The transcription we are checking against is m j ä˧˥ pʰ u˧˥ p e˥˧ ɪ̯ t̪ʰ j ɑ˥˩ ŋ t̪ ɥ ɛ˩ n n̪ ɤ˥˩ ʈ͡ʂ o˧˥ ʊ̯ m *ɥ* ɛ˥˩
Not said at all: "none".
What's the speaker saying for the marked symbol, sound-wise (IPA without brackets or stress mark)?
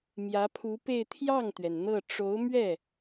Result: ɥ